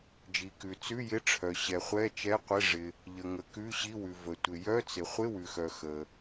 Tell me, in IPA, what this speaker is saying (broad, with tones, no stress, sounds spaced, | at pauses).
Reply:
d͡ʒ i˩ k ʉ˩ t͡s ʉ˧˥˧ j ɪ˧˥˧ ʈ͡ʂʰ œ˩ ɕ ɛ˩ χʷ ɛ˧˥˧ t͡ʃ ɛ˧˥˧ qʷ ɪ˧˥˧ ʐ ɪ˩ | ʎ ə˩ ŋ ə˩ k ʉ˧˥˧ ɕ i˧˥˧ w ʉ˩ v ə˩ tʷ ɪ˩ j œ˧˥˧ t͡s ɪ˩ χʷ ɪ˧˥˧ w ʉ˩ x œ˩ x ə˩